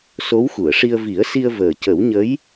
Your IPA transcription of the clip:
so˧˥wxu˨˩˨ə̯ʂi˧ə̯ vi˨˩˦ə̯si˧ə̯ vəː˨˩ cə˨˩˦wɲə˧˥j

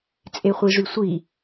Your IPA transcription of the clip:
t͡sʼeχʷiʐysʷi

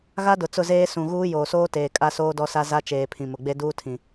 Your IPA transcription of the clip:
ɣa˦dʊ˨t͡sʊ˦˨zeː˦ sũ˦˨ ɣuː˦joː˨soː˦teː˨ kʼa˦soː˦dɔ˦sa˦ za˦t͡ʃeː˨pʰĩ˨ mʊ˨ɡ͡be˦duː˦tʰĩ˨

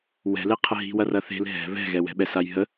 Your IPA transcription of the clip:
wɛ̤leqʰə ɦi̤wɐrɐ θe̤l ɦɛ̤ βɛ̤ɣɛwɛ̤ɓɛ sajɦə

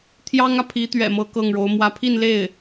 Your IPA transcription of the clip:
t̪ʰjɑ˥ŋä˨pʰi˧˥t̪ɥɛ̰˨˩ mɤ˥kɤ˥˩ŋɻo˧˥ʊ̯ mwä˧˥pʰi˥˧nle˥˩ɪ̯

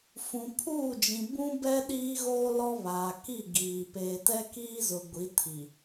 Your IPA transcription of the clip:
fũ˨ pʰuː˦˨d͡ʒĩ˨ bũ˦bɛ˦ ɗiː˦ɣoː˦lɔ˦ βaː˨ ki˦˨ɡiː˨ peː˨tɛ˦kiː˦zʊ˨ ɡʷi˨˦tʰi˨

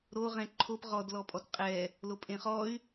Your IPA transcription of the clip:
ɾoʁɛ̃ ǃʰop ʁɔdlɔpʼɔt qʼɛ | lopʼẽχɔy̯

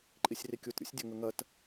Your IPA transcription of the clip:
ǃʼisʲrikʲut ɾʲṵsʲdʲɐŋɵŋɐt

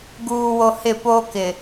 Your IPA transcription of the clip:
ɡuː˨wo˨ hɪ˦˨poː˦ kɪ˨

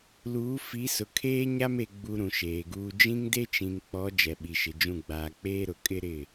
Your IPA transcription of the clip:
luː˨˦fi˨˦sʊ˨ kʰeː˦ɲa˦me˨ ɡ͡bu˦ɾũ˨ʃeː˨ɡuː˦ d͡ʒĩ˦ŋde˦t͡ʃĩ˨ŋk͡pɔ˨˦ d͡ʒɛ˨ɓi˨ʃɪ˨d͡ʒũ˦˨ ɡ͡baː˨k͡peː˦ɾʊ˨ kʼɪ˦ɾɪ˦˨

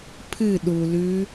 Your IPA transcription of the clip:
pʰɨ ɗu lʉ

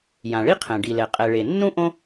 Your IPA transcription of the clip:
jã˩ɭi˥qʰɛ̃˩ ɖi˩lɛ˩ qʼɛ˩ɭe˩nːũ˥ ʔõ˥

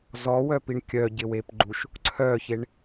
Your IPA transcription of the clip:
zɔwœpiɳ kʲœɟɪwepɡ͡ǃuʃ | ǀʰœçeɳ

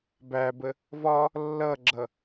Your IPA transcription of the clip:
bæbə | vɒ | lːʌɡ͡ǁʌ

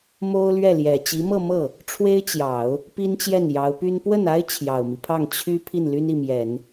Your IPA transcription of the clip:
mo˥ʊ̯lɥɛ˥˩ljɛ˨˩ t͡ɕi˧˥mɤ˥˧mɤ˥˩ | ʈ͡ʂʰwe˥ɪ̯t͡ɕjɑ˨˩˦ʊ̯ | pi˥nt͡ɕjɛ˥˩n jɑ˧˥ʊ̯py˥n pwə˥˩na˥ɪ̯ t͡ɕʰjɑ˨˩ʊ̯mi˦pʰɑ˥˩ŋ t͡ɕʰy˥ pʰi˥˩nly˥ni˥˩mjɛ˨˩˦n

